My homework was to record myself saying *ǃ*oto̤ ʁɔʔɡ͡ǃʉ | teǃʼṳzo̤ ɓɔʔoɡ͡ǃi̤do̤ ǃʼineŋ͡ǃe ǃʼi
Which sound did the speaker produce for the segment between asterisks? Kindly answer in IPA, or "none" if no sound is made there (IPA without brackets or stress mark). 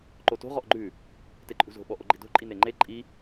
ǃ